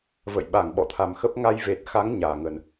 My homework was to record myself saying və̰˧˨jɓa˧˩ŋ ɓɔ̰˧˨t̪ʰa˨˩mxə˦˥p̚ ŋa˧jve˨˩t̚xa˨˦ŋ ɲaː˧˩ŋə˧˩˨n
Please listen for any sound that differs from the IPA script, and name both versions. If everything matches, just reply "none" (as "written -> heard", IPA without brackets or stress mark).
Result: none